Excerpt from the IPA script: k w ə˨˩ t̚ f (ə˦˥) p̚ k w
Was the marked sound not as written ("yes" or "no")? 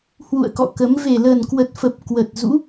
yes